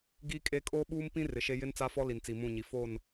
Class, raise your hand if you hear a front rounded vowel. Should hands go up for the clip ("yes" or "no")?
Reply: no